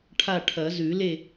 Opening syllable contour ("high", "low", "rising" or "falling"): falling